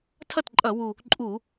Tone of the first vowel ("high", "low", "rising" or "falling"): falling